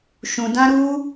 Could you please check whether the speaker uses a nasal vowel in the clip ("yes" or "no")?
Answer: yes